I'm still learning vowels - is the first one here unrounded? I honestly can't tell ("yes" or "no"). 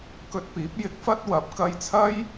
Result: no